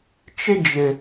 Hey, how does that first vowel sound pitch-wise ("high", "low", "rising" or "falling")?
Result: high